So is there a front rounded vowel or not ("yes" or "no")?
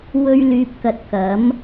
yes